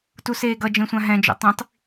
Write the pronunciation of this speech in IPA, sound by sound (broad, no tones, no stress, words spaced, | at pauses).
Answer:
tuseːɡʌ d͡ʒẽsʷãɦɛ̃ d͡ʒo̰tˤĩtˤ